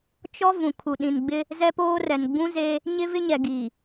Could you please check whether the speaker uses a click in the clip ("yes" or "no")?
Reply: no